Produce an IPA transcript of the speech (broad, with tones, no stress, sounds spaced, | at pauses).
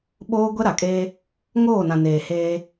ɓ oː˦ ɡʷ ɛ˦ ɾ a˨ kʼ eː˦ | ŋ oː˦˨ n ã˨ n eː˨ h eː˦